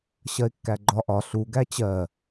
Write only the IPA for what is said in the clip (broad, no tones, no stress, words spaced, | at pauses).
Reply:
ɕɜɪ̯kːæɡ͡ǃɒ ʔɒ ɬu ɡæt͡ɕɜ